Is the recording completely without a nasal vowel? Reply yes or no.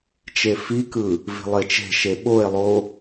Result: yes